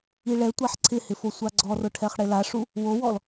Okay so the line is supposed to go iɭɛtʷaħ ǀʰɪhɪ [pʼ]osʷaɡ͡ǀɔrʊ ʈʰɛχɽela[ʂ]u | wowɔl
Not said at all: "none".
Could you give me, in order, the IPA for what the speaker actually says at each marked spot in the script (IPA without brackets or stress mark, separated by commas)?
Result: f, ʂ